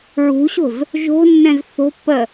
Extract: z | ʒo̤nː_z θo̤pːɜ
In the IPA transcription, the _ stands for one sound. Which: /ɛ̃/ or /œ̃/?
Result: ɛ̃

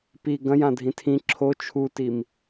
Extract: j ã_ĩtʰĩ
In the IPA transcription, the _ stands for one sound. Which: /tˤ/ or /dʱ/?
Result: dʱ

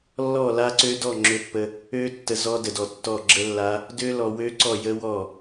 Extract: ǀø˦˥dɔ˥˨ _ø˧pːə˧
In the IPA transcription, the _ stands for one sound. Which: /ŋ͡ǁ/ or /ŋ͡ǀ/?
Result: ŋ͡ǁ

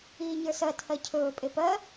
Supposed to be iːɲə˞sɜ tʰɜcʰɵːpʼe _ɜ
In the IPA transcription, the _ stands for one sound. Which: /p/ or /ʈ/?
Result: p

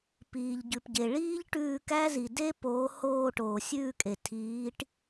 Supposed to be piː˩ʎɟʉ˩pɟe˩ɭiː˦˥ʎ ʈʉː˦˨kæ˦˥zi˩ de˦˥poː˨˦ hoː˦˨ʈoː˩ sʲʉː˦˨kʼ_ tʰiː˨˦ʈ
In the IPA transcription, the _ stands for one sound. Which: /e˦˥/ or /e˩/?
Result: e˩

